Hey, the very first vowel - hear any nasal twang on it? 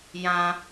yes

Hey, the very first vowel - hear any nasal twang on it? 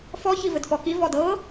no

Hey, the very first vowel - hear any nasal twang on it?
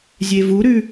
no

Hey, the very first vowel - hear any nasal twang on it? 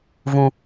yes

